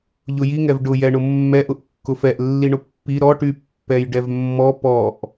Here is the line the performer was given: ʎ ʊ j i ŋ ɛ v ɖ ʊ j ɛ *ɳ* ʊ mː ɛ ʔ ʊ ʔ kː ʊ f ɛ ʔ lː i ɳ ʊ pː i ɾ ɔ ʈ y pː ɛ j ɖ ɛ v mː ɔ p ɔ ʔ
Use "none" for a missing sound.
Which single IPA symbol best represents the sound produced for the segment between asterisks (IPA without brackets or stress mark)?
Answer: ɳ